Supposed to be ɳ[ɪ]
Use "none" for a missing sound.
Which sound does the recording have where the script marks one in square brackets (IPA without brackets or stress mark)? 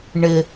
ɪ